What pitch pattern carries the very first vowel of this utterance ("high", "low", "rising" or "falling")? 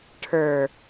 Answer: low